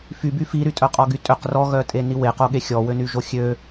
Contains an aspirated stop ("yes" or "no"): no